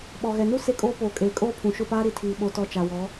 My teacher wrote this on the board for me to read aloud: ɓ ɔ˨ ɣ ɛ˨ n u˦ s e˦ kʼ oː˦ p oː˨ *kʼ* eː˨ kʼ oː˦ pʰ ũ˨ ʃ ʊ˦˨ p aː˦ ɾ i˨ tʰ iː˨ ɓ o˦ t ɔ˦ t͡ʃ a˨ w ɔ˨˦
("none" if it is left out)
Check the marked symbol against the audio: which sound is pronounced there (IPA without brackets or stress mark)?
kʼ